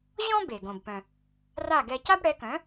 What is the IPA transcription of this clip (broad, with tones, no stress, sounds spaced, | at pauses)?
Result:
ʑ ɔ̃˥ b e˩ ɡ õ˩ b p œ̃˩ | r a˥˩ ɡ ɛ˧ c a˥ b ɽ ɛ˩˥ k œ̃˩˥